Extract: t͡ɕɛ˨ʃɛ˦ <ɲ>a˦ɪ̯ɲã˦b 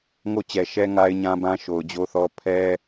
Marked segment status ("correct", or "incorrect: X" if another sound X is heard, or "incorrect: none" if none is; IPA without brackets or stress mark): incorrect: ŋ